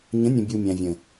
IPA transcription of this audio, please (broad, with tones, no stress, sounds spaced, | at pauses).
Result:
ɲ ə̃˨˦ nʲ ə̃˨ bʲ u˨ mʲ æ̃˨ vʲ ə̃˨